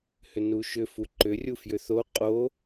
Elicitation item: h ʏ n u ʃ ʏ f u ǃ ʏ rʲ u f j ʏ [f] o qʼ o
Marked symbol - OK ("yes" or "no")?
no